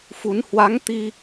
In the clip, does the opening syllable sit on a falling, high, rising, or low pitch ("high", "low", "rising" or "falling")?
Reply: rising